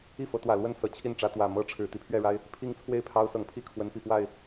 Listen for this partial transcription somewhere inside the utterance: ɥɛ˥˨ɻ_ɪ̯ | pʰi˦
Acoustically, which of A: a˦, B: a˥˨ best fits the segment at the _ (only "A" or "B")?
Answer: A